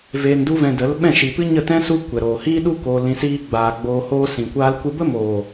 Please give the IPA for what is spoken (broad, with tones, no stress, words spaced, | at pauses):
veː˧ndu˦vɛ̃˧ də˨˦l ɓɛ̃˦˨ʃi˨pɨ˦ ɲə˦˨tɛ̃˦ su˦ kʷɛ˨ɾoː˨ hiː˦ɗu˦ koː˧lĩ˧ siː˧ɡ͡baː˨ ɡ͡boː˧hoː˦sĩ˨kʷaː˦l kʷɨ˦ bə˦moː˨